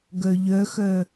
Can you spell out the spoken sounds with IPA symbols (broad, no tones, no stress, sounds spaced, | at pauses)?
ɡ œ ʎ œ x œ